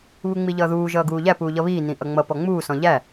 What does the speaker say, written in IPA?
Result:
βuŋ͡miʎʌːðuː ʒʌːɡuːʎæ puːʎʌβiː nĩʔʌŋ͡mʌ pɔŋ͡muː sɔ̃ʎæ

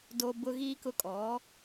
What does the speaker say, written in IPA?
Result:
do˨bʊ˨ ɣiː˦kʊ˦ kʼɔ˨˦

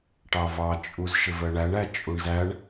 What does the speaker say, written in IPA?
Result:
ʈɑvɑ t͡ʃʼuzʃɪvɜɳæɳ æt͡ʃʼuɳzæɳ

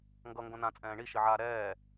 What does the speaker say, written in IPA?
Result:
ŋɡʌ ŋɡõnã t͡sʼɛ̃ːɳi ʃiʕaːɾɛː

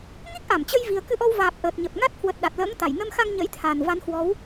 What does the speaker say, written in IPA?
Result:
ŋi˦˥k̚ʔa˧˩mt͡ɕə˧jvi˨˩ə̯ kɨ˧ʔɔ˧wvaː˨˩p̚ ʔəː˨˩t̚ɲə˨˩p̚ŋa˦˥t̚ hwə˨˩t̚ ɗa˨˩t̚lə̰ː˧˥ŋt̪a˧˩j nə˧mxa˧ŋ ɲə̰˧˥jt̪ʰa˨˩n va˨˦nhwɔ˨˦w

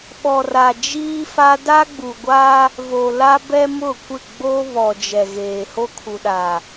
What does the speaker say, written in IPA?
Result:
ɓɔ˨ra˨d͡ʒiː˦ fa˦ da˦ɡ͡bu˨ɡʷa˦ | vo˨la˦ bɛ˦mʊ˦˨kʷɪ˦˨ ɡ͡bo˦ βɔ˨ d͡ʒɛ˨ɣeː˨ ho˦kʰu˨ɗa˨

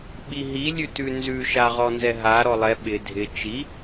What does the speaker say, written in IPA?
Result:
ɓiɦi lʲʉtʉnzʉ ʃaʁɔnzɛɦa ɾɔlˠɛ ɓɪ dʱɪ t͡ʃi

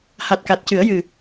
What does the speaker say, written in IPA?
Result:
ha˨˩t̚ka˨˩t̚cɨ˨˩˦ə̯ jɨ˨˩˨

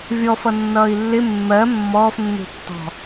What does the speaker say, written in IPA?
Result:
vʲɔfʌ nːʌːi̯lːɪ mːɜ mːɔːfnːṳtːɔ̤

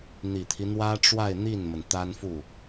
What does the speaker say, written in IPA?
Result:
n̪i˨˩t̪ʰi˦n̪wä˥ ʈ͡ʂwa˥˧ɪ̯n̪i˥˩nmə˩n t̪a˥nfu˥˩

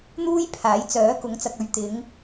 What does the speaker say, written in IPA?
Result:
n̪uː˥jpʰaː˨˥j t͡sœː˨˥ kʊ˨˥ŋt͡sɐ˨k̚ɵ˨ɥ t̪ɪ˨˧ŋ

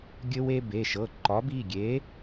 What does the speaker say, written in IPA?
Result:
ɡʲɘ˧we˧ be˩˧˩ʃɤ˩˧˩ ǃɒ˨˥b i˩˧˩ɡʲe˨˥

